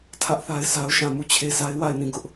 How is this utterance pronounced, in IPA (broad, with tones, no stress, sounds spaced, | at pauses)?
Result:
tʰ ä˦ ʔ θ a˦ ɪ̯ s a˦ ʊ̯ ʃ ã˦˨ m u˦˨ t͡ɕʰ e˦ s a˦ ɪ̯ w a˦˨ ɪ̯ n ĩ˦˨ ɡ ʊ˦ ʔ